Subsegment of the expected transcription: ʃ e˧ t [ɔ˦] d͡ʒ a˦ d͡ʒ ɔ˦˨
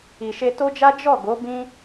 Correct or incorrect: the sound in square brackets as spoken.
incorrect: o˦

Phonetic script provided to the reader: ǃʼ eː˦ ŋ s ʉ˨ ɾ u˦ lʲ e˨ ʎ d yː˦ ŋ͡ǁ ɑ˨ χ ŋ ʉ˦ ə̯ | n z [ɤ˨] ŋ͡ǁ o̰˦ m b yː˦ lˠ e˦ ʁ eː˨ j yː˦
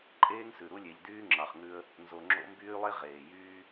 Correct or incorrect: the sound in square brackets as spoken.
incorrect: o˨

